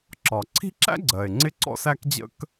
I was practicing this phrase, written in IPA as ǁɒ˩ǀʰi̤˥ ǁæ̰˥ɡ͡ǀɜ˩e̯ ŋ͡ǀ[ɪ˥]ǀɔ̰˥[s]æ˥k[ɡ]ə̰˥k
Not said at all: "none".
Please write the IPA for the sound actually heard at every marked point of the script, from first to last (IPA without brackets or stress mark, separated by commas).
ɪ˥, s, d͡ʑ